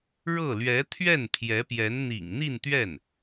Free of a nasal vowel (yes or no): yes